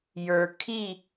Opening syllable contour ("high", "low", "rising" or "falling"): low